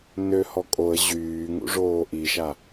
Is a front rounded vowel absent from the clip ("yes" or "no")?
no